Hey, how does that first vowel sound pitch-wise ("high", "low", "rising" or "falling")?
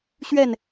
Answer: falling